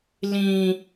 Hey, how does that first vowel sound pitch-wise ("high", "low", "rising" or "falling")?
high